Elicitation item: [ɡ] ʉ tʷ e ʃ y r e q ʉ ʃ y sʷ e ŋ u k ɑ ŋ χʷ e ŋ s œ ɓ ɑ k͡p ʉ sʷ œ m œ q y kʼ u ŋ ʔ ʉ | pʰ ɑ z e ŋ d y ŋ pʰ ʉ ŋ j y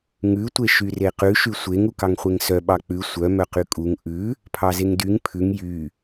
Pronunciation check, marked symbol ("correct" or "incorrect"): incorrect